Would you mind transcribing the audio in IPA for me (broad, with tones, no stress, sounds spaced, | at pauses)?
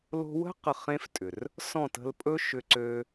l o̤˧ w ə̤˦ q ə˨ χ ẽ˦ f tʼ ʏ˨ r | s ɔ̃˦˨ t ə̤˧ l pʼ ɵ˦ ʃ ʏ˧ ǀ øː˧